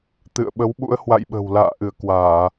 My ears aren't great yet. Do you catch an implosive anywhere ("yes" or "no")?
yes